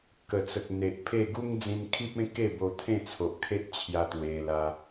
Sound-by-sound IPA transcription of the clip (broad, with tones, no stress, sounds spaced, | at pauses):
k ə˨˩ t͡s ə˨ k̚ n̪ e˨ ʔ pʰ e˥˧ ɡ u˦ ŋ d͡z ĩ˧ n kʰ i˦ p̚ ẽ˦ k e˥˧ b o˧ t̪ʰ ẽ˥˧ t͡sʰ o˨ ʔ kʰ e˦ ʔ t͡ɕʰ j a˧ t̪ w e˧ l a˧